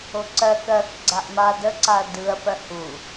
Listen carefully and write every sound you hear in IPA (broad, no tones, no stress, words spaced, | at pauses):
oǀɜk ɜk ɡ͡ǀaʔma dəǀaɐ̯ dɯɐ̯ pɜhu